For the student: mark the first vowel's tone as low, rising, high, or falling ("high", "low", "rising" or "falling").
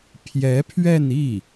rising